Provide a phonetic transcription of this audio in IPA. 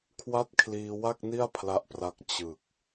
kʰwa˥˩t̚kʰliː˧wa˥˩k̚ni˥˩a̯ pʰla˦˥ʔpra˦˥k̚ t͡ɕɯ˨˩k̚

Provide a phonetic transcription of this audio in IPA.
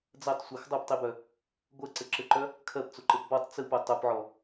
d͡zɜtˤsʷɜx dˤœptˤibœ | ɡʷɜǀɘǁɘǃœ | kʰɜpt͡soǃɘp bɔtˤ t͡sɯpo tˤopʕɔ

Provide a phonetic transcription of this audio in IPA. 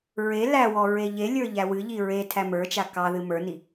ɹe læwɔ ɹeʎelʲə˞ ʎæwɨʎi ɹe tʰæmə˞t͡ʃa kɑðɨ mə˞ni

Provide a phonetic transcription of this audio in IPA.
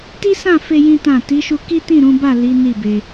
ti˦sã˦˨fe˧ jĩ˦tã˦˨ ti˨˦ʃu˧ ki˦tĩ˦˨ɾũ˨˦ba˦˨ li˨˦ ni˦˨be˧

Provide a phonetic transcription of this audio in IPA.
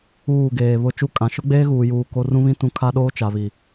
uː˦˨ɡeː˨βʊ˦ t͡ʃu˦kʼã˨ ʃʊ˦ɡ͡beː˦ɣuː˨juː˨ ko˦ rũ˦βĩ˦ tũ˦ kʰa˦ɗoː˦ t͡ʃa˨βi˨

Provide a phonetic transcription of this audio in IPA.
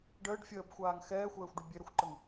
ɖəːɖ fʲəːbxʷaːŋ xɛːxʷɛːxʷɖu bʲeɾəxʷǃəŋ

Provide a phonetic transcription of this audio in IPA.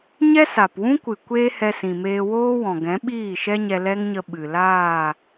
ɲɛ˦sa˨pwũ˦kʷɨ˨ kʷeː˦hɛ˧sĩ˨meː˧ woː˦wɔ̃˨ɡɛ̃˨˦ ɓiː˦˨ʃɛ˦ɲɛ˧ lɛ˦ŋɲə˧ ɓɨ˨laː˦˨

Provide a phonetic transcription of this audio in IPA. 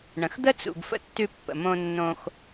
ɳə̃˩xd̪ə˥ t͡sṵ˩ɡfə̰˧ tːʉ˧pːə̰˩ mõ˧nːõ˧x

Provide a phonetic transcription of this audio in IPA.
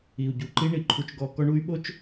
i˨u̯ɟu˨ǃi˦ ɳi˨ǃʰu˦t͡ʃɡɔ˦ kɔ˦ɳu˦y̯ɓo˦t͡ʃ

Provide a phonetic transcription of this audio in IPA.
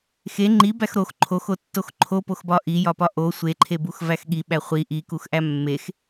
xe ŋ͡ǃi bæxɾox ǃʰoxotːox ǃʰopoxbɒ ʔijɒpɒ ʔo sʷeǃʰe buxvæxɠi ɓæχʷi ʔikuxʔæ mːex

